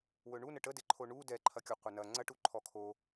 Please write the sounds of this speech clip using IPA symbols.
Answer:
w ɵ ɳ u n ə ʈ ə d e ǃʰ o ɳ u d ɛ ǃʰ ɐ kʲ o qʷ ə n ɐ ŋ͡ǀ ɐ ʈ u ǃʰ ɔ kʰ o

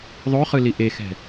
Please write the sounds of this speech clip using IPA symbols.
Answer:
ðˤ o χ ɯ l i ʔ e x ɛ̤

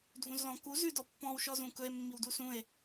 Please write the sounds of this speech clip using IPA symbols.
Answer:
dʱ ũ z l ɔ̃ k u z ʉ d ɔ pː ɔ̃ w ʃ ɔ z ũ k ɵ e̯ mː i w d u s ũ e̯

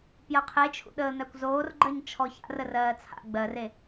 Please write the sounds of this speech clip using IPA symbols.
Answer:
p j ɜ qʰ e t͡ʃʰ ṵ ɗ əː n̪ æ kʷ z oː r ɡ͡ǃ ɜ ɲ t͡ʃʰ ɔ ç a̰ r ə r ɜː t͡sʰ a̰ ɡ͡b ɜ r e

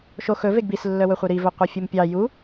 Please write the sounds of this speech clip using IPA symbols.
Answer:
ʃ o x ɵ v e ɡ b i s lː œ w ɵ χʷ œ ɾ i v ɵ qʷ œ fʲ u m pʲ ɑ j u

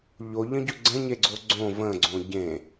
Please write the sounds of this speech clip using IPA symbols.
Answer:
ʎ o ʎ ə̃ ɟ ɵ ɡ͡ǀ ə̃ ɲ e ɡ͡ǀ o ɡ͡ǀ õ v ə̃ ɡ͡ǀ õ ɟ ẽ

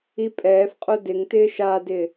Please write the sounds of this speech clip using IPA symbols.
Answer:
i pʼ ɛː f qʼ o d ɪ ŋ t ɪː ʃ a d ɪ

